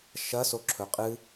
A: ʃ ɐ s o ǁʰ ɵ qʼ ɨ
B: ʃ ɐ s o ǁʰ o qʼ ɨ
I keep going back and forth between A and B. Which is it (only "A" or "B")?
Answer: A